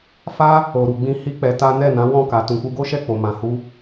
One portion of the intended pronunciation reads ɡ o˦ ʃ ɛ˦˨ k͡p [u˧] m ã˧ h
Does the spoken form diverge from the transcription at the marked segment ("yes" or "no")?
yes